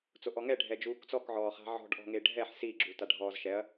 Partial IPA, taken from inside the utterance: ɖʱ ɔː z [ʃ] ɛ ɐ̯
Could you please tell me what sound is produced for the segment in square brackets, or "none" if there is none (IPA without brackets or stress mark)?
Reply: ʃ